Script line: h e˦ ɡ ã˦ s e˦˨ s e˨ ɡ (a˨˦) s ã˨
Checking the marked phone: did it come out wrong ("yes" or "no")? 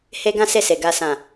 yes